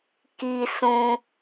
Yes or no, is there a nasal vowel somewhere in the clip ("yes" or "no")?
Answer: yes